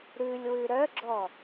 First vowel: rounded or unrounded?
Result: rounded